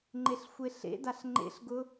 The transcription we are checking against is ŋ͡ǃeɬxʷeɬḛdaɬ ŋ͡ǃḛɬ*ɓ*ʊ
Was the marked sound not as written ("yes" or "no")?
yes